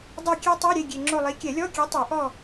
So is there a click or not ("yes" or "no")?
yes